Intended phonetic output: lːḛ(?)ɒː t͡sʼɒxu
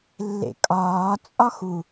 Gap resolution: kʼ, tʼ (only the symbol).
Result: kʼ